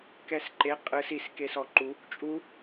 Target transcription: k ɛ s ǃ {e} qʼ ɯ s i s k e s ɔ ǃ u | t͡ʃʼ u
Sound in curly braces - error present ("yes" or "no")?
no